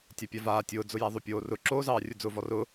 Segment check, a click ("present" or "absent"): present